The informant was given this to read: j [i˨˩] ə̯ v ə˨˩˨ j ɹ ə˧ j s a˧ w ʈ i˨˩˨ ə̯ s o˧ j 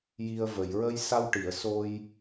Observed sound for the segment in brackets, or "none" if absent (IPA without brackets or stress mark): i˧